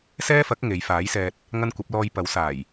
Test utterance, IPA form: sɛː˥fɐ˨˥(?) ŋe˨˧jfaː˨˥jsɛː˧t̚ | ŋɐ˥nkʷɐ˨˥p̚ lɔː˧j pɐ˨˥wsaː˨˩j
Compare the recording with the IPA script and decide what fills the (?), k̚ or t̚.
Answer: k̚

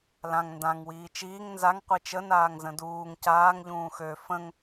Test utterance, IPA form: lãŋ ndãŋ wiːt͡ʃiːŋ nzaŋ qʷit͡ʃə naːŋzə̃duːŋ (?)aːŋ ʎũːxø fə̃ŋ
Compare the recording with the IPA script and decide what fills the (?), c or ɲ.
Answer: c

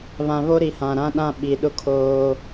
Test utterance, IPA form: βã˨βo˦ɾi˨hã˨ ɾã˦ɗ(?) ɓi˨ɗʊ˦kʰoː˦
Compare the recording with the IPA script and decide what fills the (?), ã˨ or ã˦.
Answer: ã˦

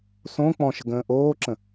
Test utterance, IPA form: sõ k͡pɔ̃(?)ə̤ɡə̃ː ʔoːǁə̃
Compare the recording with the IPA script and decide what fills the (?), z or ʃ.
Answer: ʃ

